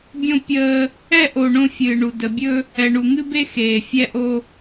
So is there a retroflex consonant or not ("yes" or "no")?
yes